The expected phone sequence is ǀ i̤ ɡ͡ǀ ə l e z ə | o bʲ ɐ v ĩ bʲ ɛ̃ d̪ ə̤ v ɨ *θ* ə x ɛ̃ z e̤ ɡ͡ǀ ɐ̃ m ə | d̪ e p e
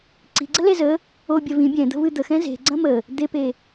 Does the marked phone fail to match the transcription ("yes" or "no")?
yes